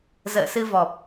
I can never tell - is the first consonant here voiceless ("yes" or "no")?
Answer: no